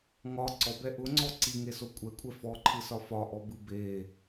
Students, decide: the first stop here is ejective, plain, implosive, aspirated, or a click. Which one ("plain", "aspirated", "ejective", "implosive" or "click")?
click